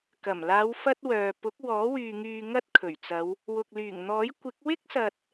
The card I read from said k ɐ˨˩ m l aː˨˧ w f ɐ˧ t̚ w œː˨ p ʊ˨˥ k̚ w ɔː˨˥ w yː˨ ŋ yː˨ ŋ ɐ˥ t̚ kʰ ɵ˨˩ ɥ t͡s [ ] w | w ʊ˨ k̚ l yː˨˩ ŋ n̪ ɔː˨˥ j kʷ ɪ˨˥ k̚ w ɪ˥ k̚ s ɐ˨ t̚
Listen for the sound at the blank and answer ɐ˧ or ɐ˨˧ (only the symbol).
ɐ˨˧